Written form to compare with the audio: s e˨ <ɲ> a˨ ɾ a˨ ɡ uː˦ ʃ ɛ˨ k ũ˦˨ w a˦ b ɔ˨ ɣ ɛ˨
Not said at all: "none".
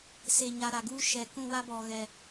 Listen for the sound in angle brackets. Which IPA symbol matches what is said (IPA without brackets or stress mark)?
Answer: ɲ